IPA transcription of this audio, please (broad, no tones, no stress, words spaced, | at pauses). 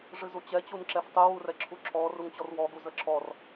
ʐɨzut͡ɕɛ t͡ɕunǁɛftˤuwu rɛǁʰuǁʰɔ ruŋt͡ɕɔrwɔɡu zəǁʰɔr